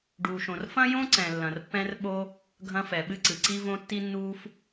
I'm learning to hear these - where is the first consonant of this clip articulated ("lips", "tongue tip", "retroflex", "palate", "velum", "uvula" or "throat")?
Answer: retroflex